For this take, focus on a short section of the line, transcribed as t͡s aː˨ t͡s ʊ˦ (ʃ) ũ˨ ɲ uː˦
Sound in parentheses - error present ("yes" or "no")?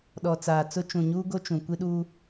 yes